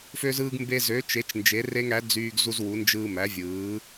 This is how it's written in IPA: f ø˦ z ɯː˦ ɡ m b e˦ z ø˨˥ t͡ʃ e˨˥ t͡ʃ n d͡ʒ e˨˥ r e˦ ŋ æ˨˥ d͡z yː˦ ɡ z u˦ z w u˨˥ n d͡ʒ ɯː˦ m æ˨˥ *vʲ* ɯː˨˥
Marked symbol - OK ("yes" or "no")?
yes